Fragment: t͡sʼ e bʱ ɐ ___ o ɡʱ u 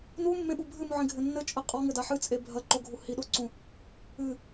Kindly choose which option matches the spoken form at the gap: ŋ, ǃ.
ǃ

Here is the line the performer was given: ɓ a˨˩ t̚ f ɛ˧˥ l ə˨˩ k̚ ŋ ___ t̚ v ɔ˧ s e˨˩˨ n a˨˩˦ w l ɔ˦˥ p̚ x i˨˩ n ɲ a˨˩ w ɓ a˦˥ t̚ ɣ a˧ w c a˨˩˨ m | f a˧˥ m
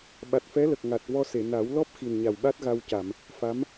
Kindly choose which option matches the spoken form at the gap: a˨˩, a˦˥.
a˨˩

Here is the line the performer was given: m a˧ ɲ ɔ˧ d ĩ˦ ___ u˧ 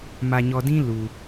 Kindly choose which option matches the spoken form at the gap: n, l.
l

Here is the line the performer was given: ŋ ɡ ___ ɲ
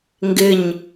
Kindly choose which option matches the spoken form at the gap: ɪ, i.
ɪ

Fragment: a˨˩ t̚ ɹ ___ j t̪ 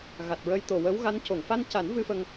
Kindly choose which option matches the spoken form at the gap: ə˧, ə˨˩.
ə˧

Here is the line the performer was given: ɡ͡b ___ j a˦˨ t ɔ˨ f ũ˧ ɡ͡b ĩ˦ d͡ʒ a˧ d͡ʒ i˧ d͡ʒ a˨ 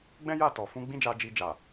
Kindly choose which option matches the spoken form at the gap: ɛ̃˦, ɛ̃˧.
ɛ̃˦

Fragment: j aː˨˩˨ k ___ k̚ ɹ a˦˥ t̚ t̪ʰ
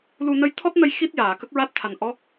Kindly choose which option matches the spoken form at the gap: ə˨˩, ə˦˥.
ə˦˥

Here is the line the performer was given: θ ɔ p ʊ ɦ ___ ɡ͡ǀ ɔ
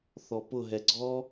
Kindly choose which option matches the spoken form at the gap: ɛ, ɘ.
ɛ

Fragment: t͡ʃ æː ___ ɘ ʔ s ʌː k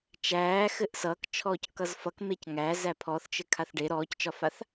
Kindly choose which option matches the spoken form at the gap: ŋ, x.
x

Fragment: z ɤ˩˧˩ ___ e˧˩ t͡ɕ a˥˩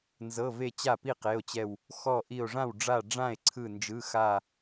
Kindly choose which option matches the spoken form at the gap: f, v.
v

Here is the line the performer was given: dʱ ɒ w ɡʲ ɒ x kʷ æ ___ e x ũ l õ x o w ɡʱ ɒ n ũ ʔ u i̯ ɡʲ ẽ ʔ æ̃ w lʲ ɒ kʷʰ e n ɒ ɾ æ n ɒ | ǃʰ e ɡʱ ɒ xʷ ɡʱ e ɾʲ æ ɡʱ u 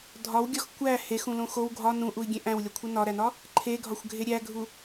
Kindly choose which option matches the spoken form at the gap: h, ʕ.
h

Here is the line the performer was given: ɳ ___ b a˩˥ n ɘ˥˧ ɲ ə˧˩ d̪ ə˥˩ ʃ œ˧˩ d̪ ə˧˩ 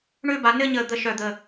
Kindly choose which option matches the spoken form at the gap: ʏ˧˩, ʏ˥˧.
ʏ˥˧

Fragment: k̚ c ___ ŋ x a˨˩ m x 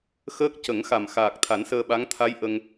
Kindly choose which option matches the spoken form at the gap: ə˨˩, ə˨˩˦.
ə˨˩˦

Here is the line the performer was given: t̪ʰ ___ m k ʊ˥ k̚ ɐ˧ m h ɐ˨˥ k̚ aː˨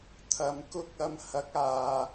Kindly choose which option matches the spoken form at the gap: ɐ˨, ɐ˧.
ɐ˨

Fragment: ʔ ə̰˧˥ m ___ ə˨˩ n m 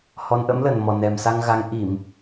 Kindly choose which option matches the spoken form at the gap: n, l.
l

